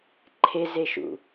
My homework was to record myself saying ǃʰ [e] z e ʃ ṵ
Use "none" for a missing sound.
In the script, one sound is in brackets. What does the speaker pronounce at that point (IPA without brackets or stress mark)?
e